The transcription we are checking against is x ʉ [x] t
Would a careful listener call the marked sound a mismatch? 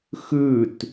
yes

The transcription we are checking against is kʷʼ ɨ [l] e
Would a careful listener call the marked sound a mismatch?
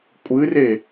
yes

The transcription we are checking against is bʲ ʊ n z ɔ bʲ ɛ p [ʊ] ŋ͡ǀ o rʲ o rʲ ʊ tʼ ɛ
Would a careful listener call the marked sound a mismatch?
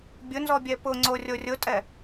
no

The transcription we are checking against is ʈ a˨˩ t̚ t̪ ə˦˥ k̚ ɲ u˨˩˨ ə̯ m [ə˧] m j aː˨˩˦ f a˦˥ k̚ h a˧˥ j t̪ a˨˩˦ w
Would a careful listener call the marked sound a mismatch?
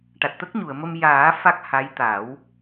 no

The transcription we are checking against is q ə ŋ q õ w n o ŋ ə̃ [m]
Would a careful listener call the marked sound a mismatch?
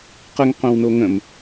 no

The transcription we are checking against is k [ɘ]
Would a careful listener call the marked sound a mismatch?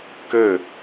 no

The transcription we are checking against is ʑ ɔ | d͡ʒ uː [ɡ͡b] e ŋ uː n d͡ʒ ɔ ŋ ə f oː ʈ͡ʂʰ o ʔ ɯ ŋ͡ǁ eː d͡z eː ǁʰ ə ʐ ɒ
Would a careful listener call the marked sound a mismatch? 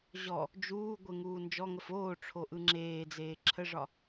yes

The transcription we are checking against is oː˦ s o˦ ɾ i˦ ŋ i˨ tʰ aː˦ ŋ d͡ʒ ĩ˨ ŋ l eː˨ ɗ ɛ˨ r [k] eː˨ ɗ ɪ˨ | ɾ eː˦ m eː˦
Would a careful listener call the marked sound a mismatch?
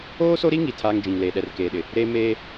no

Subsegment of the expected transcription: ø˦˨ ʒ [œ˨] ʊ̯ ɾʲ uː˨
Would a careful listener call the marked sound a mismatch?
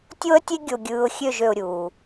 yes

